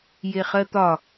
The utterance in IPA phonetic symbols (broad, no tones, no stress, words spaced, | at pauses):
jeχɜt̪ɒ